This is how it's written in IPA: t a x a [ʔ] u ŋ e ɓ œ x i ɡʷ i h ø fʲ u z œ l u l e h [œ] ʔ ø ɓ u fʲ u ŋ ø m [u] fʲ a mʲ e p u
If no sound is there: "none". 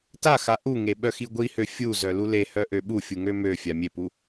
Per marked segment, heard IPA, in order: ʔ, œ, ø

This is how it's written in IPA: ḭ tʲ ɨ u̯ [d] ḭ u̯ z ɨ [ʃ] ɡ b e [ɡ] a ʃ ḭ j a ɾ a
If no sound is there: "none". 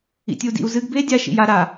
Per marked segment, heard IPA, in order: d, none, dʲ

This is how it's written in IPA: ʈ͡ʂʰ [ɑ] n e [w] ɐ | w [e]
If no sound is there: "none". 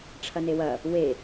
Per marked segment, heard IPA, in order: ɐ, w, e

